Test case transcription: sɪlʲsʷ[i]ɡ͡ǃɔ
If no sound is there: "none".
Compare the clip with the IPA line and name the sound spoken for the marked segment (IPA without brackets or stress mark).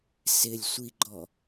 i